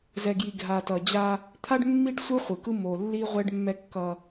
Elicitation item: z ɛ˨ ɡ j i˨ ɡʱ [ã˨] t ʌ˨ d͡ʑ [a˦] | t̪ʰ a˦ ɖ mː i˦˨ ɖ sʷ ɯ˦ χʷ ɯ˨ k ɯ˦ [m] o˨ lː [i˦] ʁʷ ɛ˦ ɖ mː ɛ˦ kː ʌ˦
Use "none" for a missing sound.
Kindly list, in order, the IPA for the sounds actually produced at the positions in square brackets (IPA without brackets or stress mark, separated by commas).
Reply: a˨, a˦, m, i˦